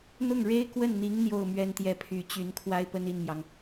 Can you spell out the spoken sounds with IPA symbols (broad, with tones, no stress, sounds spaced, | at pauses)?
n̪ ʊ˥˩ ŋ ɻ e˥ ɪ̯ k w ə˥˩ n n̪ i˧˥ ŋ n̪ j o˥˧ ʊ̯ m ɥ ɛ˥˧ n t̪ j ɛ˥˩ pʰ y˧˥ t͡ɕ y˧˥ n kʰ w a˥ ɪ̯ p ə˥ n i˥˩ n m j ɑ˩ ŋ